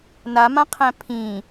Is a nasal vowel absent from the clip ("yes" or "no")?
no